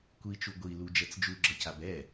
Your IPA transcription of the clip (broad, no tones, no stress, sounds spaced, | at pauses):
kʷ i t͡ʃ u ɡʷ i l u d͡ʒ ɛ t͡s d͡ʒ u ɡ͡ǁ ʌ c a b ɛ